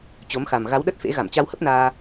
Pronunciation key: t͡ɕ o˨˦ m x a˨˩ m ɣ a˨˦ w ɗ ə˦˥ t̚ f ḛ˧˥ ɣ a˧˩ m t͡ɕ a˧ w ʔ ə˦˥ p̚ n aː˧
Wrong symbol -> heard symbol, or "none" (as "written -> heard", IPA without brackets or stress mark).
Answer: ʔ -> h